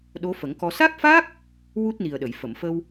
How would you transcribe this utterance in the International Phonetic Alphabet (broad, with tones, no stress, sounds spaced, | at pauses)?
ɗ o˧˥ f ə˨˩˦ ŋ k ɔ˧ s a˦˥ k̚ f a˦˥ k̚ | w u˦˥ t̚ n i˨˩ ə̯ ɗ ə˨˩˨ j f ə˨˩˨ m f ə˧ w